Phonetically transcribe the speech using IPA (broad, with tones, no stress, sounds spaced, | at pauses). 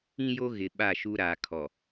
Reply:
ĩ˦ j o˦ ɣ ɪ˨ ɓ a˦˨ ʃ u˦ ɾ aː˨ kʰ ɔ˨